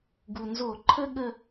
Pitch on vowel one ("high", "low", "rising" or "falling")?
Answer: low